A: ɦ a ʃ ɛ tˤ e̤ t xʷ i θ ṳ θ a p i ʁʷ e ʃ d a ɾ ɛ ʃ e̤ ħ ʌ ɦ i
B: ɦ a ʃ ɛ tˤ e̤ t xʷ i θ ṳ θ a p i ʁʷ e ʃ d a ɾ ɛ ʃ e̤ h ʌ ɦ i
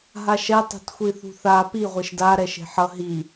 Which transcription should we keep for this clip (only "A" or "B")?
A